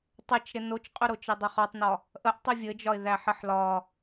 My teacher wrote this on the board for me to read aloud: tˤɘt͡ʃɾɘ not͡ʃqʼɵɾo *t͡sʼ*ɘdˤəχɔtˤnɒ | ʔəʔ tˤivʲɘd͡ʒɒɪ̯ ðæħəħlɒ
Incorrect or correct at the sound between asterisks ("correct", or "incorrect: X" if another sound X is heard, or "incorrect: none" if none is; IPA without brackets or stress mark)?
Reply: incorrect: t͡ʃ